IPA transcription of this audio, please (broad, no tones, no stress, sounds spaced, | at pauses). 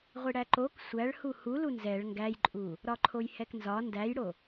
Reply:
ʁʷ i ɽ æ ǃ o k sʷ æ ɭ h u h u l u n z ɛ ɭ ŋ ɡ æ j ǃʼ u | ɾ ɒ ǃʰ o j h ɛ k n z ɒ n d æ j ɽ o